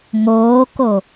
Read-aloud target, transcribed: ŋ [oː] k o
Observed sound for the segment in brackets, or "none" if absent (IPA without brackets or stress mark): oː